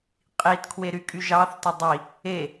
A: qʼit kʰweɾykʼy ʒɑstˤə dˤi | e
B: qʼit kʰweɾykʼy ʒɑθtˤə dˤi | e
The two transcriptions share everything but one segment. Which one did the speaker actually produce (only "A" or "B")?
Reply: B